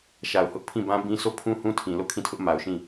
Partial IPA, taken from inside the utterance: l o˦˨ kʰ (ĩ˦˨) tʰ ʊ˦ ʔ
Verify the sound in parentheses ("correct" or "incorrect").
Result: correct